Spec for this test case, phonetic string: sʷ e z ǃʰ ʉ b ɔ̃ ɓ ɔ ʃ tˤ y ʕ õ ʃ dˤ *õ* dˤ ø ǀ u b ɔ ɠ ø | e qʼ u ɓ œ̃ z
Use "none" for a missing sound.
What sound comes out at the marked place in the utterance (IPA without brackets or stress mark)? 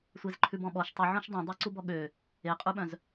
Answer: ũ